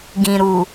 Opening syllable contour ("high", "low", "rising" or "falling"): low